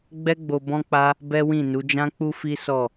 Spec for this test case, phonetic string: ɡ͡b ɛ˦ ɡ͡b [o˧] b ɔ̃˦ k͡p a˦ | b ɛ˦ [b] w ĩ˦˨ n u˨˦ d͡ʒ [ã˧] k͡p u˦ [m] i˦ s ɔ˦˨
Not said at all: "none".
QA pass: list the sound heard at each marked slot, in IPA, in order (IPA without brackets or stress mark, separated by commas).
o˧, none, ã˦, f